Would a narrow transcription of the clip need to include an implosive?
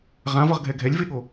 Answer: yes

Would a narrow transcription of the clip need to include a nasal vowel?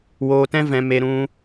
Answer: yes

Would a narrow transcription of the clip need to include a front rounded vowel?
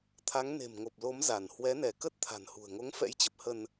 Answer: no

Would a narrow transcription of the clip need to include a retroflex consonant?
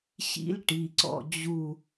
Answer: yes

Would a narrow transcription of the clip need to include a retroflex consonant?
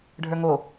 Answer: yes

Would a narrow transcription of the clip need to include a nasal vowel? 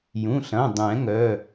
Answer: yes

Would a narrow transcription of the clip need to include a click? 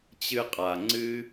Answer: yes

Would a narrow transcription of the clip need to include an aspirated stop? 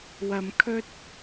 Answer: yes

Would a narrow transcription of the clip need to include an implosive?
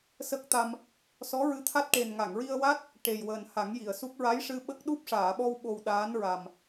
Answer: yes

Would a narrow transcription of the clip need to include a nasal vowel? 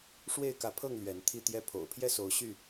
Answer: no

